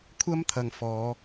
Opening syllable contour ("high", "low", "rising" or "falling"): high